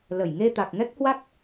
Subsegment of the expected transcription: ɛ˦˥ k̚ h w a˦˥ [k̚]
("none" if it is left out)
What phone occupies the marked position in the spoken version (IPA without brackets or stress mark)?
k̚